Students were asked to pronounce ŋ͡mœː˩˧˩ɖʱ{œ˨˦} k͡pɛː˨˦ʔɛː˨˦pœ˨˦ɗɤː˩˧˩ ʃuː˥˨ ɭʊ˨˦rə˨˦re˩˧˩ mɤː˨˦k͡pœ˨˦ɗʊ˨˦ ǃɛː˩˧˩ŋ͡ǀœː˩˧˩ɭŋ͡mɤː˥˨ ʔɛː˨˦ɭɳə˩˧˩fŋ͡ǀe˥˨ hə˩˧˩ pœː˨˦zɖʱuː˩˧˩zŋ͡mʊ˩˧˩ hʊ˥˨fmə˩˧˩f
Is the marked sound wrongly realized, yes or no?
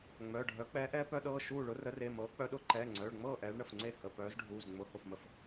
no